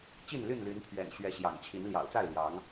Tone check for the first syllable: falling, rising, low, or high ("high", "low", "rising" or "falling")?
falling